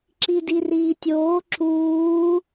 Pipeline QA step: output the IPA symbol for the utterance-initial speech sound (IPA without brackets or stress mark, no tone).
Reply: ǁ